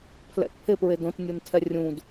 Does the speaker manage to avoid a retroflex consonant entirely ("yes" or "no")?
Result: yes